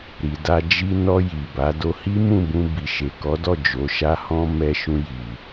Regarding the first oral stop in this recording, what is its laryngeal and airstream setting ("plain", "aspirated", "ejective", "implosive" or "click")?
plain